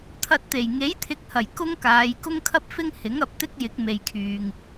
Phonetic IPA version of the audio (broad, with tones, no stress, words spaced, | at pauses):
t̪ʰɐ˧t̚t̪e˨˩j ŋe˨˥jt̪ʰɪ˨˥k̚hɐ˨˩j kʊ˥ŋkaː˨˧j kʊ˥ŋkʰɐ˥p̚fɪ˥ŋ hɪ˨˥ŋɐ˨˥p̚t̪ɪ˥k̚jɪ˨˥k̚ me˨jkʰyː˨ŋ